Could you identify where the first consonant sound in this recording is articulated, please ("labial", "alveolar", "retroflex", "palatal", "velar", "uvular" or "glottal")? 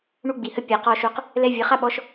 retroflex